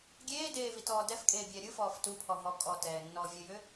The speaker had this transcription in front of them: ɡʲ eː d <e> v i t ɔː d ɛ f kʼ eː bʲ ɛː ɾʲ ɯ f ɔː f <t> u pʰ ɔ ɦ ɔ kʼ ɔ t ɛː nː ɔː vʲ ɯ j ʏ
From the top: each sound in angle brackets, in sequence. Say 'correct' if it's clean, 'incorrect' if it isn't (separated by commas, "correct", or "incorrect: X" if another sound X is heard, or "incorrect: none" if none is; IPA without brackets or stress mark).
incorrect: eː, correct